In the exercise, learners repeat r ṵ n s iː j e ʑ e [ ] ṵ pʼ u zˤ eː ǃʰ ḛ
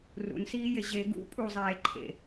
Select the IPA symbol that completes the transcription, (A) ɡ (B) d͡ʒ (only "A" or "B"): A